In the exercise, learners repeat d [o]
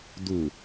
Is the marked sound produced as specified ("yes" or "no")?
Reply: no